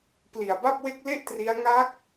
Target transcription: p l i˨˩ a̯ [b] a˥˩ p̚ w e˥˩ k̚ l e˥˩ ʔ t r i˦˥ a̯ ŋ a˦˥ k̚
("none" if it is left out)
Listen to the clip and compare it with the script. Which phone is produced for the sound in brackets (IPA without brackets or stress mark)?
b